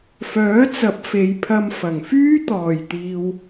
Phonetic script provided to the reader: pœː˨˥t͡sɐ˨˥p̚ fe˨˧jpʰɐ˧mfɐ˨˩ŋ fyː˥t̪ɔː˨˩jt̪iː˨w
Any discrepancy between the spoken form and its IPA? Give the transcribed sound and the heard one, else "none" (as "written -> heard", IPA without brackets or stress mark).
p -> f